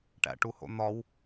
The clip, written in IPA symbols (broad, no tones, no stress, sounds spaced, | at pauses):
ʈ æ̰ ʈ u h o̰ n̪ ɒ w